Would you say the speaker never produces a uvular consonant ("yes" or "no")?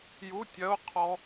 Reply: no